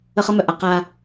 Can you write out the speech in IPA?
ə˦ χ ʌ˦ m œ˨ ʔ a˦ q a˦

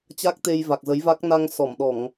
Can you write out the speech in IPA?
t͡ɕ a˦˥ k̚ t̪ e˧ j v a˨˩ k̚ z ə˨˦ j v a˦˥ k̚ n a˧ ŋ s ɔ˧˩ m ɗ ɔ˧˩˨ ŋ

